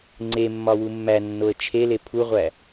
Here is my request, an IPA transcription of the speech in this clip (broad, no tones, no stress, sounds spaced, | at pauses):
ŋ͡ǀ e mː ɒ w u mː æ nː o ə̯ t͡ʃʰ e l e pʰ u ʁʷ æ